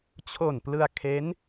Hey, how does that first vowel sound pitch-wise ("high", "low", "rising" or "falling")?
low